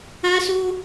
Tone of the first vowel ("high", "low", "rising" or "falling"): high